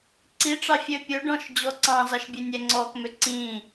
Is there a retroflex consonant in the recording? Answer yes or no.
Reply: yes